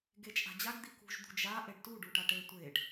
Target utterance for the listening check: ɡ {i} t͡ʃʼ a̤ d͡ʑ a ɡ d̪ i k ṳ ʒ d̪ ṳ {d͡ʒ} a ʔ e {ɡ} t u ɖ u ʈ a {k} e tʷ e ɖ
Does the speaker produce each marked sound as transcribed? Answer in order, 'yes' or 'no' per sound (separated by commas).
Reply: no, yes, no, no